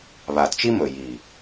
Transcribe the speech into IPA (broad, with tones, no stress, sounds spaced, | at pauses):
β a˨ d t͡ʃ i˦ m ɵ˨ j i˨